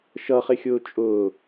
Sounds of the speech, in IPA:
ʃʌχɪxʲʊː t͡ʃʼʊː

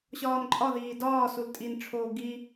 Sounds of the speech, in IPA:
ɕɒːnǃʼɒðiː dɒː sultʼinʈ͡ʂʰoː ɡi

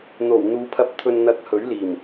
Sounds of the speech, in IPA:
n̪o˨˩wn̪uː˨˧pʰɐ˧p̚ t̪ʰɵ˨nn̪ɐ˨˥k̚ hɵ˨˥ɥliː˨˩m

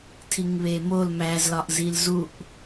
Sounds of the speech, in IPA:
tʰiŋβemol mæzlɒʔ zilzuʔ

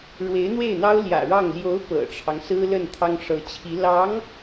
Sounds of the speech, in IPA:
ɻwe˧˥ɪ̯n̪we˥˩ɪ̯n̪ɑ˥ʊ̯ ljä̰˨˩ɻɑ˥˩ŋ ljo˧˥ʊ̯ pɤ̰˨˩ʈ͡ʂʰɑ˦ŋsɹ̩˥ lə˥˩nt̪ʰɑ˥ŋʂɤ˧˥t͡ɕʰi˧˥ lɑ˧˥ŋ

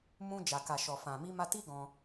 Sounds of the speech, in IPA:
mũ˧d͡ʒa˨ ka˨ʃɔ˨fã˨ mi˧ma˧ ti˦ɡɔ̃˧

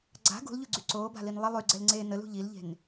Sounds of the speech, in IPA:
ɡ͡ǀa̤ ɡṳlʎuɡ͡ǀy ǀoːba̤lin lˠə lˠyɡ͡ǀɛlŋ͡ǀeː nəlṳ ʎilʎe̤n

